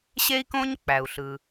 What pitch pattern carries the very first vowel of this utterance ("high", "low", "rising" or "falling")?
high